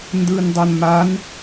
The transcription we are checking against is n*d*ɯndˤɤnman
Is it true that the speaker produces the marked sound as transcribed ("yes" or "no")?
yes